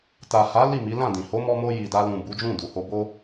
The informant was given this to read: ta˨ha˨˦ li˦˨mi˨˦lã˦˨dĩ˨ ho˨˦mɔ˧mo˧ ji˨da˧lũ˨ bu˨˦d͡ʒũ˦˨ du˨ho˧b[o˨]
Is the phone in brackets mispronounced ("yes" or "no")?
yes